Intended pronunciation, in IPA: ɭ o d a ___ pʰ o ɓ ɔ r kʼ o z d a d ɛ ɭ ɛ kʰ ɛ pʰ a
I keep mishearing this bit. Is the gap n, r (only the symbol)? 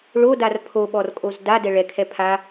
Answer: r